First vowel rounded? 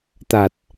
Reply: no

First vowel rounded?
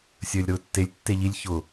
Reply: no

